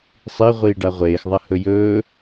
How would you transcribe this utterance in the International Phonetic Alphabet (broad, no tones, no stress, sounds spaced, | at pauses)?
sˤ i ʁʷ iː ɖ a ʁʷ eː x ðˤ ɐ h ɵ j ɵː